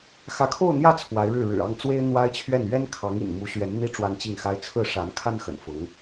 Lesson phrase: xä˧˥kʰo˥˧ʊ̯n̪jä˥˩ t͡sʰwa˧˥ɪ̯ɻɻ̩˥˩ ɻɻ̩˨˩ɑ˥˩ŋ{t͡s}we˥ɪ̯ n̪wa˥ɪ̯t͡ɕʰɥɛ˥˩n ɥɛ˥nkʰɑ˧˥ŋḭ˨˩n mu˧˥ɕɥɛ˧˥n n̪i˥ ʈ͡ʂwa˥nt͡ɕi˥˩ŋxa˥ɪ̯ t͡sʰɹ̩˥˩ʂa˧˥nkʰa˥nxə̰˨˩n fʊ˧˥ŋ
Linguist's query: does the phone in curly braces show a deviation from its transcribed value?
no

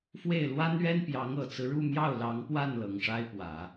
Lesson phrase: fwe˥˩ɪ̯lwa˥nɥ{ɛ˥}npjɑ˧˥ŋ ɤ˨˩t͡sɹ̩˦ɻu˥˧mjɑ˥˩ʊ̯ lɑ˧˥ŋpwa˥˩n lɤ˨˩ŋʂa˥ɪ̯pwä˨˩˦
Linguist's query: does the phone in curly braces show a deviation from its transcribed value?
no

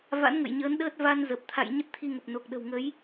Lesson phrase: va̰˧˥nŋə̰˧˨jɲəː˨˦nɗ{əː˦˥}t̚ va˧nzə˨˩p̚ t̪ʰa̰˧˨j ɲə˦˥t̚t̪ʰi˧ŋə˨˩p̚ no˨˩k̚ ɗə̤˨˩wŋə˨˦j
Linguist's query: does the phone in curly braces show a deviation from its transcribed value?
no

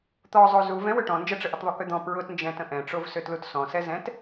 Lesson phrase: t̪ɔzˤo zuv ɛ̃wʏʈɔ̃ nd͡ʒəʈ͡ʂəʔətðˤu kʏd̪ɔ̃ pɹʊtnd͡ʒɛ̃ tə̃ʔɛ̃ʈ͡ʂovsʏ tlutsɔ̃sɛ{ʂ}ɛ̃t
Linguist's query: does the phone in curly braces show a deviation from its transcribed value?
yes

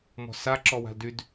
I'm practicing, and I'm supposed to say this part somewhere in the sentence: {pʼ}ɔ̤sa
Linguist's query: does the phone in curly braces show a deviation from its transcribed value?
yes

